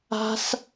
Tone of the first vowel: high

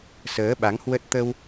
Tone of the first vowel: rising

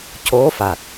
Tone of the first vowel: rising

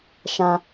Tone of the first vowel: high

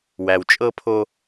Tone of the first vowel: low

